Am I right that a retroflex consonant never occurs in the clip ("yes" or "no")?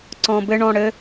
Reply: no